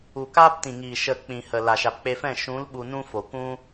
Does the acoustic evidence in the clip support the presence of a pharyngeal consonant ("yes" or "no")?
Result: no